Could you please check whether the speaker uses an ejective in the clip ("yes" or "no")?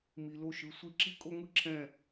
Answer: yes